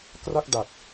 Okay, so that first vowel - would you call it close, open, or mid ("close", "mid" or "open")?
open